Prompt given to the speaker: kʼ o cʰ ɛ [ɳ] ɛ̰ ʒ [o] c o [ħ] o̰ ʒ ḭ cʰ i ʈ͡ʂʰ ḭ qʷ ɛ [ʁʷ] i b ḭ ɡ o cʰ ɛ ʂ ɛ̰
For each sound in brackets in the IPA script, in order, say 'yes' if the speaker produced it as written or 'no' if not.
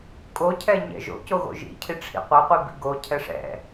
no, no, no, no

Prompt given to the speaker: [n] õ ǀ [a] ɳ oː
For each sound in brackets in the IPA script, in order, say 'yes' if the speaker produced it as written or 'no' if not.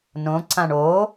yes, no

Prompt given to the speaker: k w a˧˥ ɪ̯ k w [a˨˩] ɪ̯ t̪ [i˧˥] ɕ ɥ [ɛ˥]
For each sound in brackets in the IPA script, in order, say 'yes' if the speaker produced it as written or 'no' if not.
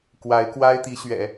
no, yes, no

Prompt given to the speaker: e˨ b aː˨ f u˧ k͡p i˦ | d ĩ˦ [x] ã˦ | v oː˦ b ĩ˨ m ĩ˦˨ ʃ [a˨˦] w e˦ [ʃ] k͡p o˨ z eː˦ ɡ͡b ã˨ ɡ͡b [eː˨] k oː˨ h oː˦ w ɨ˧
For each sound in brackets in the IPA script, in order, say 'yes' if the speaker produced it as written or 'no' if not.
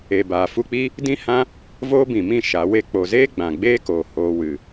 no, yes, no, no

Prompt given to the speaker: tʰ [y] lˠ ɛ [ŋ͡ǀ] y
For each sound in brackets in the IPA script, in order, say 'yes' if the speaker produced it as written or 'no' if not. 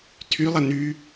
yes, no

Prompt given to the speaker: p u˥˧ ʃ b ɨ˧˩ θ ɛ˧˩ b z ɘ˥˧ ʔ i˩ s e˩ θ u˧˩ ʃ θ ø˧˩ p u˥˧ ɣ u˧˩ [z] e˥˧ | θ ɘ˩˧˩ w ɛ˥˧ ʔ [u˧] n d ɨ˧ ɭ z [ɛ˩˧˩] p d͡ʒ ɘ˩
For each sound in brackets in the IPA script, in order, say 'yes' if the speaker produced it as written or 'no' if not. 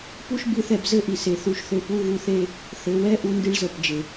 no, yes, no

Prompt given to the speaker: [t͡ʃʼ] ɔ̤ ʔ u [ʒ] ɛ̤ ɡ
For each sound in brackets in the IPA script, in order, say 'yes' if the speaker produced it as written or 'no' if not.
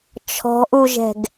no, yes

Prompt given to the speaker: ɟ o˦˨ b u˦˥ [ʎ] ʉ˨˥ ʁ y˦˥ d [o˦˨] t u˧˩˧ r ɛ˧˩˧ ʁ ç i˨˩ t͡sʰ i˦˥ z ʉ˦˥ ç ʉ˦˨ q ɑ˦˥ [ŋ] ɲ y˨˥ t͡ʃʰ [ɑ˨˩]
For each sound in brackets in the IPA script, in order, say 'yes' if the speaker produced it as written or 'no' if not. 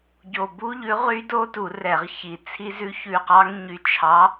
yes, no, yes, no

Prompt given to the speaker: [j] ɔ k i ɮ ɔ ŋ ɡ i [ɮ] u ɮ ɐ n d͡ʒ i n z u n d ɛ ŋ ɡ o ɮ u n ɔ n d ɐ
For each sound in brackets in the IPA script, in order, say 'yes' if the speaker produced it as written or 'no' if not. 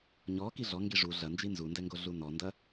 no, no

